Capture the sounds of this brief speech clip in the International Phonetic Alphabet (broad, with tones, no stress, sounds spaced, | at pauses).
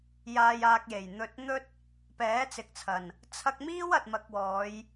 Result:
j aː˧ j aː˧ k̚ j e˨˩ j n̪ ɵ˧ t̚ n̪ ɵ˥ t̚ | p ɛː˨˥ t͡s ɪ˨ k̚ t͡sʰ ɐ˨˩ n | t͡sʰ ɐ˧ k̚ m iː˥ w ɐ˨ t̚ m ɐ˧ k̚ w ɔː˨˧ j